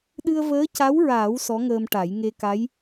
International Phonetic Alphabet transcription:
ɗɨ˧ə̯vəː˧˥ca˧˥wɹaː˨˩˦w sɔ˧˥ŋəː˧mʈa˨˩˦j ŋe˧ka˧˥j

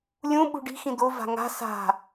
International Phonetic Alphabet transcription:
lʲũ ɓṳɖi̤ xĩd̪o va̤ŋa̤ sa̤

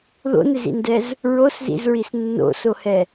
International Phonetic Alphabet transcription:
ðo̰nɪzḭndɛz | ɹoszḭzɹis nːo̰sohɛ

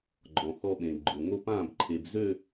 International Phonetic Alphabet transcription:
ɡ͡ǃɔ̃˨xɔ˦ɓẽ˨ɡ͡ǃʊ˨ ŋo˦pã˦˨bǃʰe˨b zø˦˨

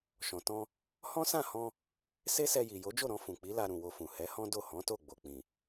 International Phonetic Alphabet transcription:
ʃɔ̃˨tɔ̃˧ | hɔ̃˦sã˦˨hɔ̃˧ | se˦sɛ˧ji˨ jo˨˦d͡ʒo˦˨ɾɔ̃˧ fũ˨ k͡pi˨˦la˧ɾũ˨ wo˧fũ˨ hɛ˨˦hɔ̃˦ do˦˨hɔ̃˨˦to˦˨ ɡ͡bo˨k͡pĩ˨

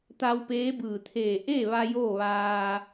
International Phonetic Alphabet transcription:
t̪a˧wpeː˧˥bɯː˧˩ t̪ʰeː˧˩ ʔeː˥˨ʋa˧ joː˥˨ʋaː˧

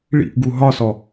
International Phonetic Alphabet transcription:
ɭḭʔɡu ɦɒsɔ

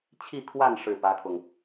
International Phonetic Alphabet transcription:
t͡ɕʰi˥˧kʰwa˥˧n ʂɻ̩˥˩pä˥kʰʊ˨ŋ

